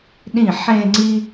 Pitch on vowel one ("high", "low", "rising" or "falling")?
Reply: falling